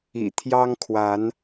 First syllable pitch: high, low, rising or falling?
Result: low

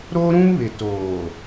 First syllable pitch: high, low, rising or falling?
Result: high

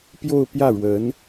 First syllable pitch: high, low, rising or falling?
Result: falling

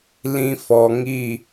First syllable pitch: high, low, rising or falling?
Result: low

